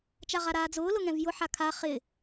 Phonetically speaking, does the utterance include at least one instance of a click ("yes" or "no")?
no